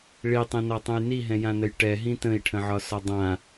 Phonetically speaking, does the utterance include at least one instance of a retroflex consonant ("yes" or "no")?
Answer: yes